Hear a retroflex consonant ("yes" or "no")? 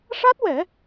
yes